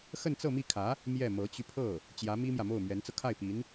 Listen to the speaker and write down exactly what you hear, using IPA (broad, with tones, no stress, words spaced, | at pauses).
xə˥˧nt͡sɤ˥˧mi˥˩kʰä˧˥ | mjɛ˥˩ mɤ˧˥t͡ɕy˧pʰɤ˥˩ | t͡ɕjä˧˥mi˥mjä˨mo˥˩ʊ̯ mɥɛ˧˥nt͡sɤ˧ kʰa˥˩ɪ̯pi˧˥n